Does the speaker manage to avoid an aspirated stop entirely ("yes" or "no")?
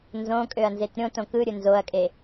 yes